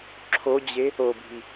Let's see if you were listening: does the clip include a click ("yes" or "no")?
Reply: yes